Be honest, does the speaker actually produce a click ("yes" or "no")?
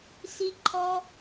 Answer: yes